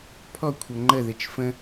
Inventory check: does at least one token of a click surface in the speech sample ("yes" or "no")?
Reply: yes